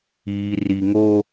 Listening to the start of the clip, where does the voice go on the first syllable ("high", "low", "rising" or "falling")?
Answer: low